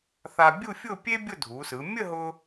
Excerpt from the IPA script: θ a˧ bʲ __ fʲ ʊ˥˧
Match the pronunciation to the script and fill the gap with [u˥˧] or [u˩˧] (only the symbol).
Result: u˥˧